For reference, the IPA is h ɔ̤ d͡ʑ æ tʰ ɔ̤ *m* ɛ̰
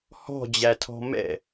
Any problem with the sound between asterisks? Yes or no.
no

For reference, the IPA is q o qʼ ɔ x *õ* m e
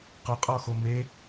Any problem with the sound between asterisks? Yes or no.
yes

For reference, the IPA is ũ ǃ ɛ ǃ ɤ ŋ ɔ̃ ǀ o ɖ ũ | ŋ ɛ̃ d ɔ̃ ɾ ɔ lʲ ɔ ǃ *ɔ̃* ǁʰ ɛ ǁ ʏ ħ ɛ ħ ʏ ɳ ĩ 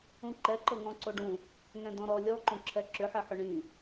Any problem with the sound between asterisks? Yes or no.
yes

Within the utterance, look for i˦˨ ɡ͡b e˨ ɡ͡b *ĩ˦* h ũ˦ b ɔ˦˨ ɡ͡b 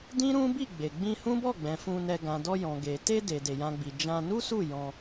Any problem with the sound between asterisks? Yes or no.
yes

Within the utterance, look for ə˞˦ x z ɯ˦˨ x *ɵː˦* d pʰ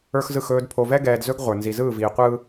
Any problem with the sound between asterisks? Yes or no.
no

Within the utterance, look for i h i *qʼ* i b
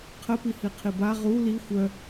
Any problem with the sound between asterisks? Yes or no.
yes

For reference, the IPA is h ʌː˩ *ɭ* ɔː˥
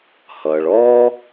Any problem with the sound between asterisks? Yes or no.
no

